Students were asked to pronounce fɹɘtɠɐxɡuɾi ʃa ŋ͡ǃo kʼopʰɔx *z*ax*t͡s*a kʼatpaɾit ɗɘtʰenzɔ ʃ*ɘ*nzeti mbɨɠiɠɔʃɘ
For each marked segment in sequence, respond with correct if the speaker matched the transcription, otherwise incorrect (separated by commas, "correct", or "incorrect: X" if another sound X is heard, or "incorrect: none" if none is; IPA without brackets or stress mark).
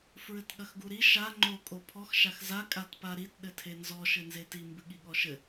incorrect: ʃ, incorrect: z, correct